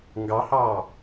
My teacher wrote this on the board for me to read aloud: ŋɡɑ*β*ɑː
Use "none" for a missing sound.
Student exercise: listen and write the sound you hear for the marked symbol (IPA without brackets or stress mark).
h